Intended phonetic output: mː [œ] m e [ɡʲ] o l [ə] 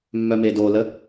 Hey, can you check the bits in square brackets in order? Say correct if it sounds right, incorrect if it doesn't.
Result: correct, incorrect: d, correct

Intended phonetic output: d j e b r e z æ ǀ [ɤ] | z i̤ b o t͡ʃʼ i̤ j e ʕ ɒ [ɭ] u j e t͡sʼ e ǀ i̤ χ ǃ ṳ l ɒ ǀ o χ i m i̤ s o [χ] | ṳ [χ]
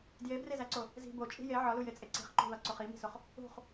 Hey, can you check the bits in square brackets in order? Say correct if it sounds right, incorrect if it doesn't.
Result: incorrect: o, incorrect: l, correct, correct

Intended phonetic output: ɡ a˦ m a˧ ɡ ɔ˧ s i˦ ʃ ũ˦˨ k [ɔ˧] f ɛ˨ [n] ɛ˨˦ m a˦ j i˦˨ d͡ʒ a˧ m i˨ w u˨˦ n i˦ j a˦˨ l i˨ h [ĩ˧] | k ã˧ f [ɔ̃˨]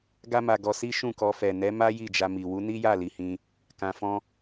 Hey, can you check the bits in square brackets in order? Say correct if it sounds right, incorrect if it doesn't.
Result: correct, correct, correct, incorrect: ɔ̃˦

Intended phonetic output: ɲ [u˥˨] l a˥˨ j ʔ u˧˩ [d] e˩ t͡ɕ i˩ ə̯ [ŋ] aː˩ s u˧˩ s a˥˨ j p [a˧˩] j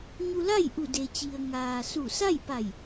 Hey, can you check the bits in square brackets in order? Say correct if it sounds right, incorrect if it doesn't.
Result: incorrect: u˧, correct, correct, correct

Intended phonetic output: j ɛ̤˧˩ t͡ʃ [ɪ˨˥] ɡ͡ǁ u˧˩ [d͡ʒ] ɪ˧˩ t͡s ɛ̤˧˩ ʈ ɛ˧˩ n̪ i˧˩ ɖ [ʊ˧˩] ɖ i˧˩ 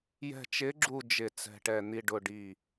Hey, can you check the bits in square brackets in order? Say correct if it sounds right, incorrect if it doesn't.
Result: correct, correct, correct

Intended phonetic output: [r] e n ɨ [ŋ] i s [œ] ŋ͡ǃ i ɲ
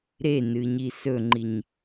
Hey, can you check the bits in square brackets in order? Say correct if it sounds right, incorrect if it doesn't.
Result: incorrect: ɾ, incorrect: ɲ, incorrect: ɵ

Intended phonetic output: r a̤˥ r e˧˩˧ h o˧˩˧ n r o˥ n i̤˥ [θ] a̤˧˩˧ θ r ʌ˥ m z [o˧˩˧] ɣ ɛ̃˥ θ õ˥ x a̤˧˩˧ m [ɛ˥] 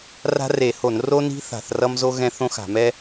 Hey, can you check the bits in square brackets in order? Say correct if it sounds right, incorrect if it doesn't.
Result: correct, incorrect: o˥, correct

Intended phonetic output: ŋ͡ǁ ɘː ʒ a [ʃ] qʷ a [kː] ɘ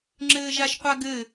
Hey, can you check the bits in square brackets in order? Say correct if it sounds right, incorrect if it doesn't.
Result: correct, incorrect: ɡ

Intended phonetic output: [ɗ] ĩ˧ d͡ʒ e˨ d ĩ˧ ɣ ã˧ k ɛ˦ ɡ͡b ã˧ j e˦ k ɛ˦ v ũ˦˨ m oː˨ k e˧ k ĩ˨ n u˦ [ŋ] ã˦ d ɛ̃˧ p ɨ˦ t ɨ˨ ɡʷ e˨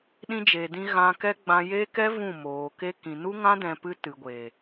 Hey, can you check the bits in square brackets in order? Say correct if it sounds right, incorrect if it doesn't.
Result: correct, correct

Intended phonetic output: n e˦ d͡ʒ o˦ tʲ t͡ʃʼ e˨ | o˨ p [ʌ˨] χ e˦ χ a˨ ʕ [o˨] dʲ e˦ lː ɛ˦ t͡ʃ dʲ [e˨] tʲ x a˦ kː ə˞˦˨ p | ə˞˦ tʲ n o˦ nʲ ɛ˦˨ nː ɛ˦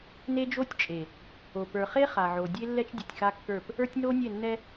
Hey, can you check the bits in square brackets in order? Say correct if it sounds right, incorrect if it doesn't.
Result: incorrect: ə˞˨, correct, incorrect: ɛ˨

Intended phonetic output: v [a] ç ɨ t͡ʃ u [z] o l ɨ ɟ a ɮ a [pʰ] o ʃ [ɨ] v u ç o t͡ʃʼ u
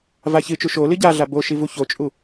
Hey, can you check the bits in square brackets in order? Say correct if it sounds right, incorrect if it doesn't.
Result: correct, incorrect: ʃ, incorrect: b, incorrect: i

